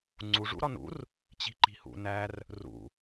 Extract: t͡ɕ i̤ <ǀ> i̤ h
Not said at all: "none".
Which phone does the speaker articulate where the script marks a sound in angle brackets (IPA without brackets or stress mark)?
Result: ǃ